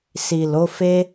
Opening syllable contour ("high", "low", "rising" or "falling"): low